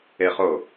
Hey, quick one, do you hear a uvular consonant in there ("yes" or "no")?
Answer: yes